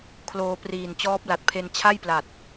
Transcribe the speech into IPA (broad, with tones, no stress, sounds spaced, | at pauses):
kʰ l oː˧ p r iː˨˩ n t͡ɕ ɔː˦˥ p̚ l a˨˩ t̚ pʰ e˧ n t͡ɕʰ a˥˩ j p l a˨˩ t̚